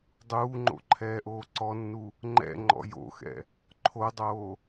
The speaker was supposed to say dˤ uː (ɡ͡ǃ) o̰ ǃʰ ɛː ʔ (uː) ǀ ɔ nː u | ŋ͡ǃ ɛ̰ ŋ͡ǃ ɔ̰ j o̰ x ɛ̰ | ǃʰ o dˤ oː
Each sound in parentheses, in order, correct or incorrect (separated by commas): incorrect, incorrect